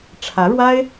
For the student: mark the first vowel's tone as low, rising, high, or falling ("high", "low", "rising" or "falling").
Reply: rising